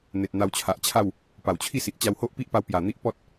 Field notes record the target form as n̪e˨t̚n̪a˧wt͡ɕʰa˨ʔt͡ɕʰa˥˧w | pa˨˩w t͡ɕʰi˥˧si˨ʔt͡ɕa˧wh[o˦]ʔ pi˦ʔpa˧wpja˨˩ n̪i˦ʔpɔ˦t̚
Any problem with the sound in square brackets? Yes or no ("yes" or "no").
no